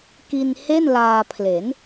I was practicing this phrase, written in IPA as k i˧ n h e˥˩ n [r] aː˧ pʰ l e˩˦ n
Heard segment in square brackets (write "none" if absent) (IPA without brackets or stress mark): l